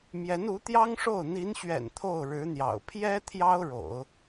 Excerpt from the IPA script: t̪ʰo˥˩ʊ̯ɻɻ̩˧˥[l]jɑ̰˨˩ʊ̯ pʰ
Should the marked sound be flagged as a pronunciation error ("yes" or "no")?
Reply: yes